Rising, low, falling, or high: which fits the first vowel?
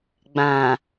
low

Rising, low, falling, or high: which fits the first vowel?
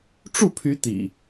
falling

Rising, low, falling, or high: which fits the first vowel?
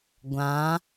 rising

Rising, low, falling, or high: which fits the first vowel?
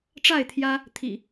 falling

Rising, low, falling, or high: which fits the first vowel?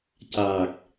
low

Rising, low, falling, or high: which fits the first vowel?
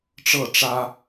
falling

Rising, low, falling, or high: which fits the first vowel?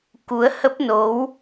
rising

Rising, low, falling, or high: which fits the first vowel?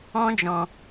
high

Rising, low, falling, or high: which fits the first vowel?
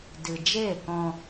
low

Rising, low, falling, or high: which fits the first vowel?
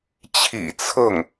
low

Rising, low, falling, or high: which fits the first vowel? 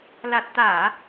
low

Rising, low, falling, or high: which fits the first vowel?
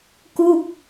falling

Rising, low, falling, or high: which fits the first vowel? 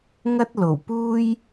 high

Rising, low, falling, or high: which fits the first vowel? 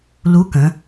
rising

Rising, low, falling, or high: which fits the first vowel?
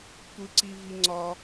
low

